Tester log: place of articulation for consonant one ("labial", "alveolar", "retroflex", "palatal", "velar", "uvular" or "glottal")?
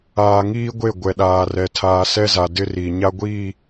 velar